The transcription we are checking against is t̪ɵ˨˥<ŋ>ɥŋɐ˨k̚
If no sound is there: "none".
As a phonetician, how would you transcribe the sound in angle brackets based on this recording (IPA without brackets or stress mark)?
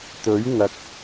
none